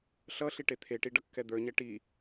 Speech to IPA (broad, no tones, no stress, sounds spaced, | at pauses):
ɬ ʌ ɬ i ʈ e t̪ʰ e ʈ i ɖ ʌ kː ɛ d̪ ə˞ ɲ ɛ ʈ i